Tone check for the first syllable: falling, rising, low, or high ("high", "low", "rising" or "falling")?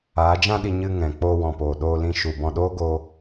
rising